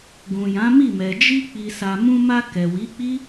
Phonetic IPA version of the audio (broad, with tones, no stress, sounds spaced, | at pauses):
ɡ ũ˨ j ã˨˦ m i˦˨ m ɛ˨ d͡ʒ i˧ k͡p i˨ s a˨ m ũ˧ m a˧ k ɛ˨ w i˨˦ k͡p i˦